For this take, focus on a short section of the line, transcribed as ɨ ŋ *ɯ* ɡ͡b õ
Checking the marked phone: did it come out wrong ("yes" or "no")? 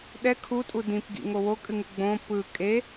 no